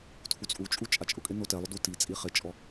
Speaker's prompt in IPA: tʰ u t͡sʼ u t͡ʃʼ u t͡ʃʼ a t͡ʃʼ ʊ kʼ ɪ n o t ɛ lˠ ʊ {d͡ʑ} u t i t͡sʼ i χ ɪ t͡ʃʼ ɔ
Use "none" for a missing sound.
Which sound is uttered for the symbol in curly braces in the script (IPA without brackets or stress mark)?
d